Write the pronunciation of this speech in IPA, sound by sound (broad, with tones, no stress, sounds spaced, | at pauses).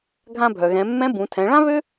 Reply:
ɡʱ ã˧ bʱ œ˩ ɣ ɛ̃˩˧ mː ɛ̃˧˥ b ũ˩˧ tʰ ɛ̃˩˧ ɭ ã˥ β ø˥